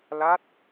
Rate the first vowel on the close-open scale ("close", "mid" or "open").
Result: open